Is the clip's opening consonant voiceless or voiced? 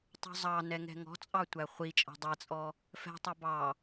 voiceless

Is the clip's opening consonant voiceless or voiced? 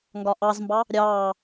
voiced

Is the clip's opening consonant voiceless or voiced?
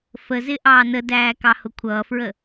voiceless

